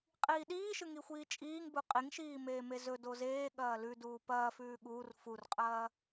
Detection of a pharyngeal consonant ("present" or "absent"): absent